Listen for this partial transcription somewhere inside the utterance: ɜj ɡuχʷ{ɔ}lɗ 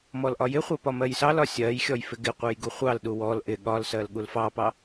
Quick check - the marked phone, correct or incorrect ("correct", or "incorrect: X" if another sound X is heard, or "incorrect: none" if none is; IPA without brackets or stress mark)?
incorrect: ɑ